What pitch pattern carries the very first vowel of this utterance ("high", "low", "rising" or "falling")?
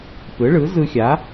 rising